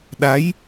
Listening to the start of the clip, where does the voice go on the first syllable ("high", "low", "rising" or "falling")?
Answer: rising